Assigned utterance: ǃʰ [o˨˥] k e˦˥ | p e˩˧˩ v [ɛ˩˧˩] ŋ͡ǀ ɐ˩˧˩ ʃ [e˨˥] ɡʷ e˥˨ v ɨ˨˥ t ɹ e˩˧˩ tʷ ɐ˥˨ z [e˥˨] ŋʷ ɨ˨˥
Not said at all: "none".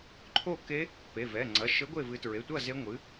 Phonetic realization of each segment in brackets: o˥˨, ɛ˩˧˩, ɘ˨˥, e˦˥

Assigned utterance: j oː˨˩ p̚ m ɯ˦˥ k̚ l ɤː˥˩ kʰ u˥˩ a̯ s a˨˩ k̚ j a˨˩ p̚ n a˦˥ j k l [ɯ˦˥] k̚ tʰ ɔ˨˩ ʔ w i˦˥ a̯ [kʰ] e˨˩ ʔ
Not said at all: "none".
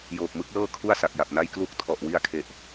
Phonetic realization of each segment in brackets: u˦˥, kʰ

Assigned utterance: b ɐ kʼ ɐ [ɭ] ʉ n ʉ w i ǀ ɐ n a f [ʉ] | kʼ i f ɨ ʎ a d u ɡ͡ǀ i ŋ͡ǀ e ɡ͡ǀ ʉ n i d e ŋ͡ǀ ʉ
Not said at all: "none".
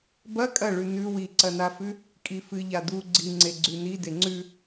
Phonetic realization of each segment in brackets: ɭ, ʉ

